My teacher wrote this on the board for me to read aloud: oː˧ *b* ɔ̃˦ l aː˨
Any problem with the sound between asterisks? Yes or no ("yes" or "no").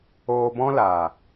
no